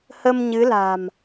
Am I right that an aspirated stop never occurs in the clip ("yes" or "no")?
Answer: yes